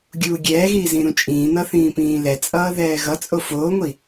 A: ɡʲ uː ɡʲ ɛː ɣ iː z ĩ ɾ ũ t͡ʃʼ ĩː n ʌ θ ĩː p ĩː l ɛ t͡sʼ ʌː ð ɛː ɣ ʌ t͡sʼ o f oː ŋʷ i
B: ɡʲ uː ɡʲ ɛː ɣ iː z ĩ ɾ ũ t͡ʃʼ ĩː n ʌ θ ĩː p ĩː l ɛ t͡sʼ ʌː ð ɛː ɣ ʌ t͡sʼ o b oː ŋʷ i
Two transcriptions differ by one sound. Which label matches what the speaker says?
A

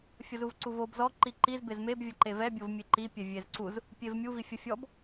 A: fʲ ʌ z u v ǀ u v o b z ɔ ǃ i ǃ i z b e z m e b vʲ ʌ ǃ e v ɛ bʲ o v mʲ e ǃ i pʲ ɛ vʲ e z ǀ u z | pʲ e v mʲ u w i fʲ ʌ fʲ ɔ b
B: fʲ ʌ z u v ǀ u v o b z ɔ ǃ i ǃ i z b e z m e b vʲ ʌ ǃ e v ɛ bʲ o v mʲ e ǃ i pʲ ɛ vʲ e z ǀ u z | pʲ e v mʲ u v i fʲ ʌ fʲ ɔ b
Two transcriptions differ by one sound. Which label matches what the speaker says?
B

